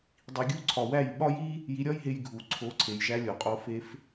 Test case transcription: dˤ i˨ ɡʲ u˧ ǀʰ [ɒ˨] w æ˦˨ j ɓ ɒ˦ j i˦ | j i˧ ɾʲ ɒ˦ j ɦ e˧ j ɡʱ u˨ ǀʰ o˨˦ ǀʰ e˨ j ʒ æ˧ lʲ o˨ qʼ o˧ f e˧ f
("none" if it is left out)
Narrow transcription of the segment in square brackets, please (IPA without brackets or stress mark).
ɒ˨